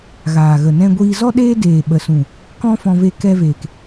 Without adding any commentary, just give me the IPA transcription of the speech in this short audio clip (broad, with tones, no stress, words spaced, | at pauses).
ɣaː˨ɣə˨ nɛ̃˧ɡʷiː˧ zɔ˦ɗeː˦deː˨ɓə˨ sũ˨ | kɔ̃˦fɔ̃˧ve˧ kɛ˧veː˨k